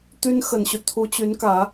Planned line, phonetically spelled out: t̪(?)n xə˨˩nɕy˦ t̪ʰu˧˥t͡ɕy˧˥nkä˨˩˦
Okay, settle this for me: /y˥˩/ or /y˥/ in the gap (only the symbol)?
y˥